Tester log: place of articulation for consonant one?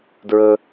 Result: alveolar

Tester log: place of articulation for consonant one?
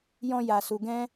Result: palatal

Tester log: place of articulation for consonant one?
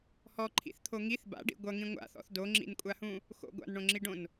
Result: glottal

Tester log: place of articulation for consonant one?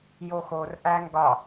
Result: palatal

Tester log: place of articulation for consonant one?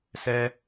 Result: alveolar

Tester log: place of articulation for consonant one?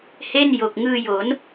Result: glottal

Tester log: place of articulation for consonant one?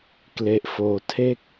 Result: velar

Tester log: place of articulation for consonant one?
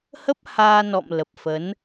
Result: glottal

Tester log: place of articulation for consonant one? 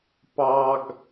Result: labial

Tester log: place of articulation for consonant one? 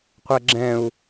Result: uvular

